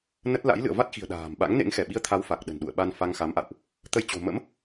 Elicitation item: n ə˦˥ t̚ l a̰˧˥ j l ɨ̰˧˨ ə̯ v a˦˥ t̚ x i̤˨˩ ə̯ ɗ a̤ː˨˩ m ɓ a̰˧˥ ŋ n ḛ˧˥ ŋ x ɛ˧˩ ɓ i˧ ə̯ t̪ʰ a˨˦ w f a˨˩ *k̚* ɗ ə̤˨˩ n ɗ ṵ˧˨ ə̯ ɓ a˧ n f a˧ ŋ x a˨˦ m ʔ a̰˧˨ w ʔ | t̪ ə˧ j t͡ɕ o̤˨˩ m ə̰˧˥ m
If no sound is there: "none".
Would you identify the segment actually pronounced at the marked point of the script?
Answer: k̚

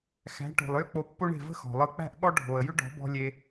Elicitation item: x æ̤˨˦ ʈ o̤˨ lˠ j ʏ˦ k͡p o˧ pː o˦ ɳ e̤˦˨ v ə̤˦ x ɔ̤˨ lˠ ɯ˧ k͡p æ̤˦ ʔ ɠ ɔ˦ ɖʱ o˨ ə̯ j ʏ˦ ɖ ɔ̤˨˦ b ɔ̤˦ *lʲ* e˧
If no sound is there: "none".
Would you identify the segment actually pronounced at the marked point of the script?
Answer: lʲ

